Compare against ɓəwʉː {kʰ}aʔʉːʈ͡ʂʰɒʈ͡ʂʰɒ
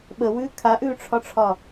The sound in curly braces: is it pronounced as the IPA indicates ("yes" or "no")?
yes